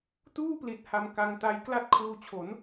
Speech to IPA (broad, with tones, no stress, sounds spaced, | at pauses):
t uː˥˩ p l i˨˩ t̚ h a˧ m k a˧ ŋ t a˦˥ j k l a˥˩ t̚ kʰ uː˧ t͡ɕʰ o˩˦ n